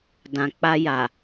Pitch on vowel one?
low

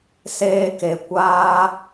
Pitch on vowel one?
high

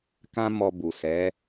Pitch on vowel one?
high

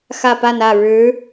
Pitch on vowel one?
falling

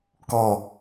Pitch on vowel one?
falling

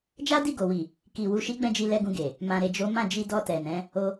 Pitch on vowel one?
high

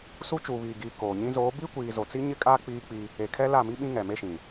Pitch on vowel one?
high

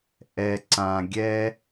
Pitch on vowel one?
low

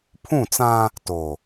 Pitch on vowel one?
falling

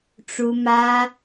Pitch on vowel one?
high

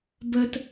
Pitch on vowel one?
high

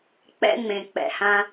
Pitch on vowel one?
high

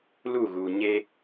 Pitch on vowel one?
falling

